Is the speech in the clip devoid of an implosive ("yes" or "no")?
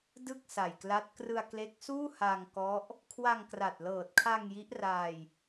yes